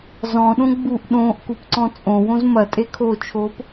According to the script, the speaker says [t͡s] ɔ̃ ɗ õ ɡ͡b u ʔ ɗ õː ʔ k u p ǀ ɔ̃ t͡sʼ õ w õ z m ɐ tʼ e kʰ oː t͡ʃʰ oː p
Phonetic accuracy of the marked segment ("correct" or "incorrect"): incorrect